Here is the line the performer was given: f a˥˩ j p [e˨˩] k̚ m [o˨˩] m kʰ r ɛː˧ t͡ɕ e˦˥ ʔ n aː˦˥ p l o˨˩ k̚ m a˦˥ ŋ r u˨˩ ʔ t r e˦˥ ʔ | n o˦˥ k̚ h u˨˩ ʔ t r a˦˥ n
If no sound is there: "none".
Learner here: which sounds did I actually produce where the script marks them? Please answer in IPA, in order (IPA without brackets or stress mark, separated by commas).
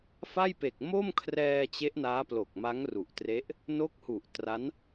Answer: e˨˩, o˥˩